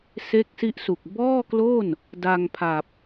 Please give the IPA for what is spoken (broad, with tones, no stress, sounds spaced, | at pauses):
s e˦˥ k̚ s i˦˥ ʔ s u˨˩ k̚ b ɔː˥˩ k l o˥˩ n | d a˧ ŋ pʰ a˨˩ p̚